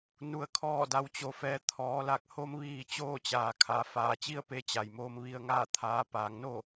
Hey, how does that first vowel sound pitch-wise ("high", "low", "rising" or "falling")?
low